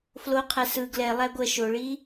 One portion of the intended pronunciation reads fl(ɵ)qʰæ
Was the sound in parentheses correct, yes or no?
no